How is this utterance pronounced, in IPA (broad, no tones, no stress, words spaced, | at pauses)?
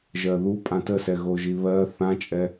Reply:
ʒɜðu pʼãtəsɛ ɣoʒiβɜ θãt͡ʃʼɛ